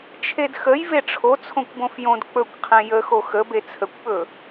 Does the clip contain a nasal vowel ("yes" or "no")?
yes